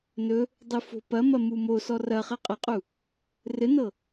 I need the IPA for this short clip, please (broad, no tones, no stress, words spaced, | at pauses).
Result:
nɵ | dˤufo̤pɐmɐ mumosɔ rɐχɘ qʼɐqʼu | rɘnɤ